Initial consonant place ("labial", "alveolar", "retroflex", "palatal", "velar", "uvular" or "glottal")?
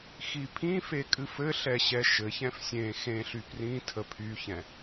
velar